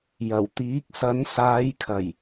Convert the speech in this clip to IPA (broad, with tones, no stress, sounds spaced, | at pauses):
j ɐ˨˩ w t̪ iː˨˥ k̚ s ɐ˨˥ n s aː˨˧ j kʰ ɐ˨˩ j